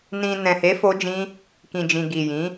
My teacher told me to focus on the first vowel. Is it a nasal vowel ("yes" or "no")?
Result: yes